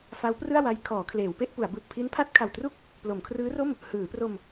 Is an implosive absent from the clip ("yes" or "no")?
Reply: yes